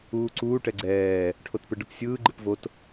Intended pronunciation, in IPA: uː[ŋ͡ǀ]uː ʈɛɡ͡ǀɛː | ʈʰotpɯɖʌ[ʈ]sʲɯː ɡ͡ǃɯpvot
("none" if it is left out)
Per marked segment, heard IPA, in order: ǀ, p

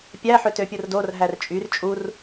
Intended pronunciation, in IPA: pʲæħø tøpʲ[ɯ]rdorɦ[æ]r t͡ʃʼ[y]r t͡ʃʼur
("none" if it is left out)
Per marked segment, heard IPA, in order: ɯ, æ, y

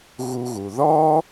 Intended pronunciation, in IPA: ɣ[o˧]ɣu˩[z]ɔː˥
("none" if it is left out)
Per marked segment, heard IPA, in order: u˧, ð

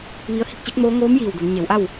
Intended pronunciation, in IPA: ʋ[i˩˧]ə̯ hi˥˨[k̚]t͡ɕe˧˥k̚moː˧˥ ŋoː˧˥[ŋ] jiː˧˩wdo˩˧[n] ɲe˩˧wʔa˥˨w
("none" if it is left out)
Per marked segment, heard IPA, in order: i˧˥, k̚, m, n

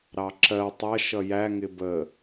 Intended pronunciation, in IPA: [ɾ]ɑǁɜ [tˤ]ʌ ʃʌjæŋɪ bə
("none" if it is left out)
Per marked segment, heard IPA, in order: ɾ, tˤ

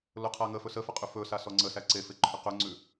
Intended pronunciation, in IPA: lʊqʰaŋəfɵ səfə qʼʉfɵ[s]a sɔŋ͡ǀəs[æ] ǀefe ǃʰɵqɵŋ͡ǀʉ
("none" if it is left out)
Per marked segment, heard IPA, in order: s, æ

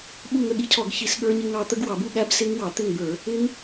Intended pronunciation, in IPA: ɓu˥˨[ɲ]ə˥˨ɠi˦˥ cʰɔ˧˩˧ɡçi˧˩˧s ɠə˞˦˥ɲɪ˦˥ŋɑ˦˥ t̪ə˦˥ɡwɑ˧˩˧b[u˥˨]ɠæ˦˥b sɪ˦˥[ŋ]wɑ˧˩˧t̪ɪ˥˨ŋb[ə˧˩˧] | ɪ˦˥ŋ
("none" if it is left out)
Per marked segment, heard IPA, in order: ŋ, u˥˨, ŋ, ə˞˧˩˧

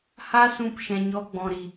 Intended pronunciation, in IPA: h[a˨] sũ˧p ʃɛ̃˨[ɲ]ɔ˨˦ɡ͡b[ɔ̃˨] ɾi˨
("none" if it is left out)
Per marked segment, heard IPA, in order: a˦, ɲ, ɔ̃˨

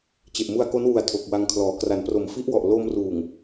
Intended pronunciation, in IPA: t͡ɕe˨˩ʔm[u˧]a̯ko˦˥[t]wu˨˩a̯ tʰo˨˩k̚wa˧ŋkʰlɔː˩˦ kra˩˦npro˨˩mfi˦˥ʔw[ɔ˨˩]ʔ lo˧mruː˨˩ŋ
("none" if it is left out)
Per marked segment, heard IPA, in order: u˧, n, ɔ˨˩

